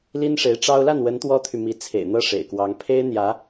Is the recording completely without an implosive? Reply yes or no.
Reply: yes